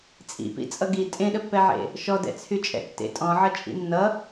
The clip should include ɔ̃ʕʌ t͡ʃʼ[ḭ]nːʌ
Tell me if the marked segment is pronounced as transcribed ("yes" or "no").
yes